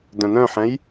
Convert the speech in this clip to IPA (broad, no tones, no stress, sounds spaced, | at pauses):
d œ̃ n œ̃ ħ ɛ̃ j